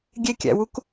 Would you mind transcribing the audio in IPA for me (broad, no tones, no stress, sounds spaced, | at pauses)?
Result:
ɡʲ e kʲ æ̰ w u k